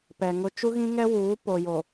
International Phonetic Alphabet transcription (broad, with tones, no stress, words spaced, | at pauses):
pɛ˨ŋʊ˦ t͡ʃu˦ɣĩ˦ŋɛ˦ wuː˨˦po˨jo˨